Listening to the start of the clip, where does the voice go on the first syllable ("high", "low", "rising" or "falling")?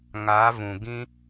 rising